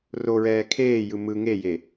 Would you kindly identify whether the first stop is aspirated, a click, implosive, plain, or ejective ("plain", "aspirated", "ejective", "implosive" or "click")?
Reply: aspirated